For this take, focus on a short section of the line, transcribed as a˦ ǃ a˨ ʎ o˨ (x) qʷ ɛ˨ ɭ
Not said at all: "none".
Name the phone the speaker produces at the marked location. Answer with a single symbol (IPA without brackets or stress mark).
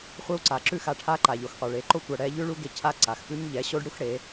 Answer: x